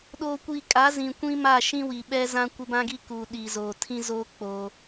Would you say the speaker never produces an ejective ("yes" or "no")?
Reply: no